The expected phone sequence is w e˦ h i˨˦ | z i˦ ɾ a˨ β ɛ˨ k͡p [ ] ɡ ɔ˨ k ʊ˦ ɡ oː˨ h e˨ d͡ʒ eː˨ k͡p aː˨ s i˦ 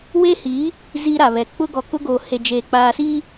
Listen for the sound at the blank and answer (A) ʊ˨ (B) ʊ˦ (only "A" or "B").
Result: B